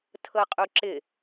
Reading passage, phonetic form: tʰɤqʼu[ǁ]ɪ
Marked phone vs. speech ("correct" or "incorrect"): correct